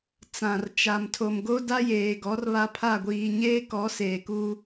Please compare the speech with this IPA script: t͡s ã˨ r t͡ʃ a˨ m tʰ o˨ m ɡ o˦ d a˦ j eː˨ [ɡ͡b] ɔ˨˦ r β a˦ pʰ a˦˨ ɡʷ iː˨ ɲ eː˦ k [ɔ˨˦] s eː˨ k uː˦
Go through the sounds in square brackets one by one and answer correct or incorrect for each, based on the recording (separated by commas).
incorrect, correct